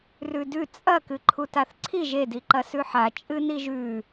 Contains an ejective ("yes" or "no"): yes